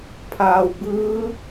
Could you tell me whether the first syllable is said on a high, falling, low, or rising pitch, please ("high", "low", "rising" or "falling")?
low